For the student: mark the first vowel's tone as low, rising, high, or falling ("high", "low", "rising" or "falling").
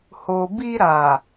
low